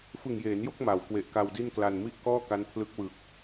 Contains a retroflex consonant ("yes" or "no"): no